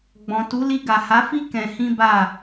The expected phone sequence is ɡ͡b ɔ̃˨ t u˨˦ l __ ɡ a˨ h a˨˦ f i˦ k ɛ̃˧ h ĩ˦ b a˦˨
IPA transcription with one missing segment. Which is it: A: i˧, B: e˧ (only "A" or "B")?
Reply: A